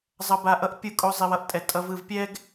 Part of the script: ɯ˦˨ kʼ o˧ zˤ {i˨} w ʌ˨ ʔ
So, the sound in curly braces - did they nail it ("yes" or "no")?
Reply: yes